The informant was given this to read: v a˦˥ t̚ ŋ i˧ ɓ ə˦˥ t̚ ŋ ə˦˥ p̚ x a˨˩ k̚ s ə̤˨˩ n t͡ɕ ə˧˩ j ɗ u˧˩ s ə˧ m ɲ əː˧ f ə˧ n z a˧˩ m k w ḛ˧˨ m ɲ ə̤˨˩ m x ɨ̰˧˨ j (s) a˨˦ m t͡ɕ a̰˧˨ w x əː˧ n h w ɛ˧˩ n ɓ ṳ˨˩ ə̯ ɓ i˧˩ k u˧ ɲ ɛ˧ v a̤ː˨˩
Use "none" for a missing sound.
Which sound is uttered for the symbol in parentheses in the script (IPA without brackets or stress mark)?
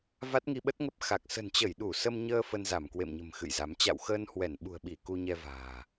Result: z